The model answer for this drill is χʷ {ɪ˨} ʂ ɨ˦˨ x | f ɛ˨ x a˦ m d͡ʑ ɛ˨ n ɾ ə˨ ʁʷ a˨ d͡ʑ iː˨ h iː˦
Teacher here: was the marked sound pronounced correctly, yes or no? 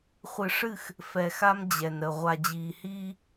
no